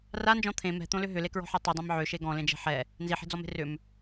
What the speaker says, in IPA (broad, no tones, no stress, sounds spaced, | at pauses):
r a n d͡ʒ ɔ̃ t̪ʰ ẽ m ɛ̤ t̪ õ l ʏ ɦ ʏ l e k ɹ ɔ̤ ħ a tˤ i dˤ ã m ʕ ø ʃ e ɡ ɔ̃ l ẽ d͡ʒ ɛ̤ ħ ɛ | n z i ħ e̤ d͡z ɔ m e̤ r ʏ m